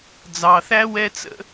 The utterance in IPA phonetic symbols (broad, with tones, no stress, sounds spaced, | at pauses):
d͡z ɑ˨ θ æ˦ w ɛ˧ t͡s ə̰˧